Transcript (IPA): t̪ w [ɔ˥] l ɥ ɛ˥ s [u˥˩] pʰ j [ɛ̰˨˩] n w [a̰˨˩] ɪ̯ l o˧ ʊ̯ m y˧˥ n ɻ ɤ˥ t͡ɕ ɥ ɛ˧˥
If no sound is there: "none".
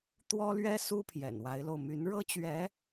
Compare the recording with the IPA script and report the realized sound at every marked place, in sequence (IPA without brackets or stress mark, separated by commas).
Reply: ɔ˥, u˥, ɛ̰˨˩, a˧˥